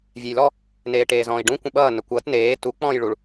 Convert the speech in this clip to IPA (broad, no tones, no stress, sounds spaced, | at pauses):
vʲ ɛ j l ɔ | n eː ʈ eː z ɔ̃ː i̯ ɖ ũ kʷ ə̃ ɓ ʌː n ə kʷ ʌː t n eː t u k͡p ɔ̃ː j ɭ u ɭ